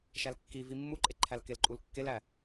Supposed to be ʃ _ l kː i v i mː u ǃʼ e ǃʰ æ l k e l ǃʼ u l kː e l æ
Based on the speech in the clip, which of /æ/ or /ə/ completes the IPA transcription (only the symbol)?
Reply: æ